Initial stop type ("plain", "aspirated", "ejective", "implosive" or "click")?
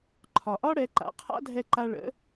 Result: click